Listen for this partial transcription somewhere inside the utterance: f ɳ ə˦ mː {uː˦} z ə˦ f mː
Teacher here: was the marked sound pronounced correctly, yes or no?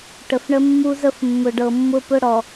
no